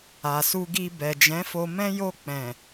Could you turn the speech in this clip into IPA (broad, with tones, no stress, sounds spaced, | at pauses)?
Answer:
a˨ s u˧ ɡ i˧ b ɛ˨ d͡ʒ ɛ̃˨˦ f o˧ m ɛ̃˦ j o˧ k͡p ɛ̃˨